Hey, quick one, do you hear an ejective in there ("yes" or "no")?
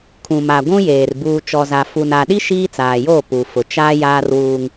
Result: no